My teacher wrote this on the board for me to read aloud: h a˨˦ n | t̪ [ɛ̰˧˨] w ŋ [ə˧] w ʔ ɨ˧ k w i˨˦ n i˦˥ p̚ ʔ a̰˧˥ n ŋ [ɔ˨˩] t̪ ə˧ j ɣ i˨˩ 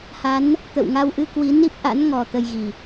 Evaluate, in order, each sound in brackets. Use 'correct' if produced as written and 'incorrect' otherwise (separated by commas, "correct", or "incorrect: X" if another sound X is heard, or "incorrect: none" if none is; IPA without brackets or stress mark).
incorrect: ə̰˧˨, incorrect: a˧, correct